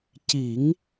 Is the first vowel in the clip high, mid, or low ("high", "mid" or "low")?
high